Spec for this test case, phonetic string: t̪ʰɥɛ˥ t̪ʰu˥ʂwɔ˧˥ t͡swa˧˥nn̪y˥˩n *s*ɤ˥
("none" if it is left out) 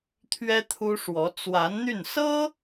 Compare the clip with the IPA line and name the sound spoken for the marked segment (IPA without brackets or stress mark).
s